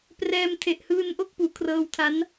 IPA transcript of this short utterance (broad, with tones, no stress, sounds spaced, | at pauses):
p r ɛː˧ m tʰ e˨˩ ʔ h ɯː˧ n ʔ o˥˩ k̚ p uː˩˦ kʰ r ɤː˧ w tʰ a˦˥ n